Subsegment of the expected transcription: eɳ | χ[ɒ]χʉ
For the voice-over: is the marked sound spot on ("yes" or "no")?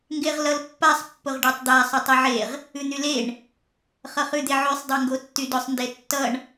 no